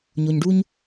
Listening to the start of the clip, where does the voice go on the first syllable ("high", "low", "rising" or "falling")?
low